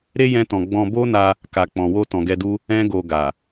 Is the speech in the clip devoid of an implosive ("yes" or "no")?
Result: yes